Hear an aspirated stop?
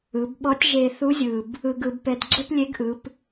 no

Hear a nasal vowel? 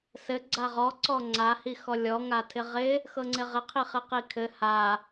no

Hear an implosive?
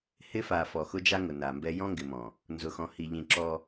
no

